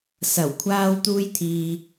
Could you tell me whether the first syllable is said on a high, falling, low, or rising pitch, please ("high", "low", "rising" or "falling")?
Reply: low